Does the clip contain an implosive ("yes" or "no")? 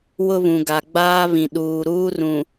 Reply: yes